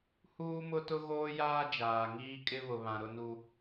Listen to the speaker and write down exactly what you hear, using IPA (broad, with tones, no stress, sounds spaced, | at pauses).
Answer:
h uː˦ m ʊ˦ t ʊ˦ ɣ oː˦ j aː˦ d͡ʒ aː˨ ŋ iː˦ kʼ ɪ˦ β ʊ˨ β ã˨ ɾ ʊ˦ n u˦